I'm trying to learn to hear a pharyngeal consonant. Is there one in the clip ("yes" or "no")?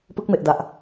no